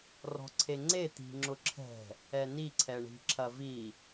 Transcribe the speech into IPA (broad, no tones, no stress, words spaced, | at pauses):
rɔ̤ǀʰeŋ͡ǀe t̪i̤ŋ͡ǁʊǁʰɛ̤ | ɛni ǀʰɛɳi̤ǁʰɐvi